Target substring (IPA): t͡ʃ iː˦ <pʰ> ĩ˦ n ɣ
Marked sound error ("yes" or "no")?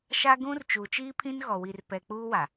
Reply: no